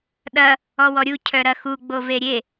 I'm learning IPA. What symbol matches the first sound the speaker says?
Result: ɗ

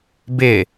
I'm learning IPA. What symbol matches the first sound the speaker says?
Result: b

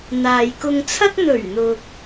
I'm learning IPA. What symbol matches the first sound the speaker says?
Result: n̪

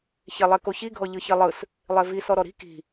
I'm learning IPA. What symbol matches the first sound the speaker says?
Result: ç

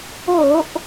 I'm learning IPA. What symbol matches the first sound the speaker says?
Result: o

